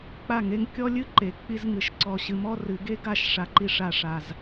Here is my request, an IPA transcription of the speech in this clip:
k͡p a˦˨ ŋ e˦ ŋ kʲ ɔ˦ lʲ ɨ˦ ǃ e˨ k͡p i˦ z ŋ ɨ˨ ʃ ǀ ɔ˨ ɕ ɨ˨ m ɔ˦ r ɨ˨ ɡ e˦ ɡ a˦˨ ʃ ʂ a˨ ǃ i˨ ʂ a˨ ʂ a˨ z

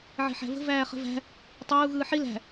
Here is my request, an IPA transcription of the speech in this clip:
ʕ e̤ ħ æ̤ v ə̤ v æː χ ə̤ v æ̤ | tˤ əː u̯ ɣ ɯː ħ i l æ̤

